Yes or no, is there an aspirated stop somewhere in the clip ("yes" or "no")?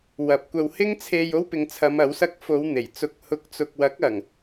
yes